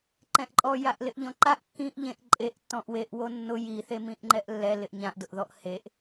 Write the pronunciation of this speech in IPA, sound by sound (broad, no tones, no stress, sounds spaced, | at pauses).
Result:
ǃ ɛ̃ ʔ ǃʼ ɔ j a ʔ l ɪ ʔ ʎ ɔ̃ ǃ a ʔ kː ĩ ʔ ʎ ẽ ʔ ǃʼ e ʔ tː ɔ̃ ʔ w e ʔ w o nː ʊ j i θ e m ĩ ʔ ŋ͡ǃ ɛ ʔ lː ɛ l ɪ ʔ ɲ ã ʔ d ʊ ʔ ð ɔ ʔ h e ʔ